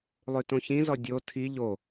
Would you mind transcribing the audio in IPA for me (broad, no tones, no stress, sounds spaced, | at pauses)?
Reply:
lˠ ʉ t õ ç ĩ z ɔ dʲ o tʰ i ʎ o